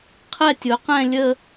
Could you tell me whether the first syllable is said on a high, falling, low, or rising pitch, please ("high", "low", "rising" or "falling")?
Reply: falling